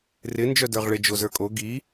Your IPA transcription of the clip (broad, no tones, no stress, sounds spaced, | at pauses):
r ɪ n d͡ʒ œ d ə˞ ʁ ɭ ɪ d͡ʒ o z ə˞ kʼ o ɡ i